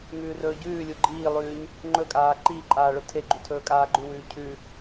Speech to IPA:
ŋʉːrɵːɟʉːlʲu ɡ͡ǃiːlˠʉːɲ | ŋ͡ǃɵ kʼaːǃiːǃʼaː ɭɵtʰeɡ͡ǃu tʰɵːkʼaːɡ͡ǃʉwʉː cʰʉ

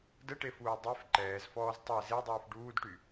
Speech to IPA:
dəʈefuː dˤef ǃɛːzfɔːz tˤɛ zedˤuːf ɖuːdʈy

